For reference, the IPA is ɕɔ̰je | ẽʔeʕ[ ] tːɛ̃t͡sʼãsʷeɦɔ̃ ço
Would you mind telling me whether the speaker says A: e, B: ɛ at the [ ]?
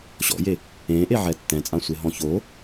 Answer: B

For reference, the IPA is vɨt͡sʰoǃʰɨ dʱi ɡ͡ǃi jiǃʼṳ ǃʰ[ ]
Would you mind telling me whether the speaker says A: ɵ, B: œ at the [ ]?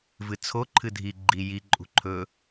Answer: A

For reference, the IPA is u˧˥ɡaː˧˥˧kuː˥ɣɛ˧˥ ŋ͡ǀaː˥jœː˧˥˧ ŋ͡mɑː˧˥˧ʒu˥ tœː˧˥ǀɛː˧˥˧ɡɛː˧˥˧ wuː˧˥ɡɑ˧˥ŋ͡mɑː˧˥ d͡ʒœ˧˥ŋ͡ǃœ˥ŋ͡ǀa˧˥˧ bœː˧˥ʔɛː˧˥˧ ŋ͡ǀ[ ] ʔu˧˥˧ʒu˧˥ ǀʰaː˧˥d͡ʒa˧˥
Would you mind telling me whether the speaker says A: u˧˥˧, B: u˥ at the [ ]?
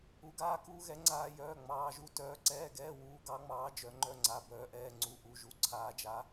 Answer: A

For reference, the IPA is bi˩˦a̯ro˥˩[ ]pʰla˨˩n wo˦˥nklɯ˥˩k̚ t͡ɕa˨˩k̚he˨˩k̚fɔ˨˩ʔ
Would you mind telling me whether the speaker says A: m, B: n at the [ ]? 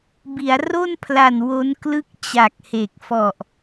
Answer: B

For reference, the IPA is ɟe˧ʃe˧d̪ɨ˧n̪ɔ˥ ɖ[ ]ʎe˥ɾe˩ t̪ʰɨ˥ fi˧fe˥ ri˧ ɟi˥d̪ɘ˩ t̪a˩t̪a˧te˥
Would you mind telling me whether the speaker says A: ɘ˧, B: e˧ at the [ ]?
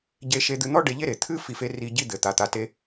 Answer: B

